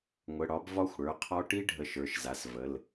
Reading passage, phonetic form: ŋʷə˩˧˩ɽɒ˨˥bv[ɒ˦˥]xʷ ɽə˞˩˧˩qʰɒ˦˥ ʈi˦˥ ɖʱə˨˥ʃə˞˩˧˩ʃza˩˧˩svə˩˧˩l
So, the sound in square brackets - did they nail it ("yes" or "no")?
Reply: yes